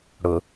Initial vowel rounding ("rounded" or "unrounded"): rounded